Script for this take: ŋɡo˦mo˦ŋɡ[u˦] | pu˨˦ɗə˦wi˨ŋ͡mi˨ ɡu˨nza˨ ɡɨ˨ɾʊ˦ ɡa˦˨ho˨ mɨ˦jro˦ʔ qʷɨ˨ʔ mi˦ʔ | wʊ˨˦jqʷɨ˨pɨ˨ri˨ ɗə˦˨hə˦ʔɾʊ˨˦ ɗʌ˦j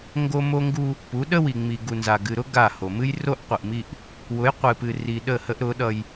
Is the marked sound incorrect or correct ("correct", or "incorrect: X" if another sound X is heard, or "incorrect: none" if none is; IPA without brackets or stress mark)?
correct